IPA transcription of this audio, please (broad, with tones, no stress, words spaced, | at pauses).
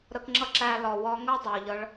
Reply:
ɾə˧kŋ͡ǁʌ˦ǁæ˧lɒ˨ wɒ˧ŋɜ˦ dˤɜ˨ʎʌ˧ɭ